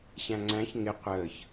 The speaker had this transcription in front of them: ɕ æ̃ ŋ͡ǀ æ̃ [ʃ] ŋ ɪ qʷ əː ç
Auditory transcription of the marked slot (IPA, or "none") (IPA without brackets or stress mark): ç